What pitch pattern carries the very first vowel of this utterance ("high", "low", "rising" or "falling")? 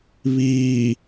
low